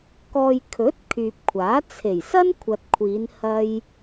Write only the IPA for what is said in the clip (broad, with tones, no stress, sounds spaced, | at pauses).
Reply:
k ɔː˧ j kʰ ɵ˨˥ t̚ kʰ yː˨ p̚ kʷʰ aː˨˥ t͡sʰ e˨˩ j s ɐ˥ n kʷʰ ɐ˨ t̚ kʷʰ iː˨˧ n h ɐ˥ j